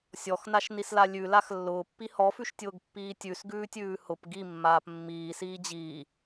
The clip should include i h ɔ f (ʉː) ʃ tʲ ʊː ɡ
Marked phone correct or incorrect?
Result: incorrect